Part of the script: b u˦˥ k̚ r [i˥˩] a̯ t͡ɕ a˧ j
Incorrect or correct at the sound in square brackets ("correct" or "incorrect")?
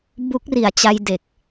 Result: incorrect